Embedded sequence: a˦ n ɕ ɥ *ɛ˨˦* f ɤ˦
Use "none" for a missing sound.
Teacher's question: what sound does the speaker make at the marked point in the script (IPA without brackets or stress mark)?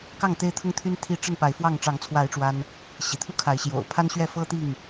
ɛ˥˨